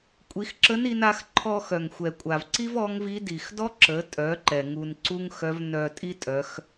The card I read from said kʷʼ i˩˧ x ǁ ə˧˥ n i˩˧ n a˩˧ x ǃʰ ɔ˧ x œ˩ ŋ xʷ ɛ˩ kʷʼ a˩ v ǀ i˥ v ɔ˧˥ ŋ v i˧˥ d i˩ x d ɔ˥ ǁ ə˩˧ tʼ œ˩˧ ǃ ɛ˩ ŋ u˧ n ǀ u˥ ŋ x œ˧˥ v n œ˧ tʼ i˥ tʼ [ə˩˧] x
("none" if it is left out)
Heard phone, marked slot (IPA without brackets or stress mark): œ˩˧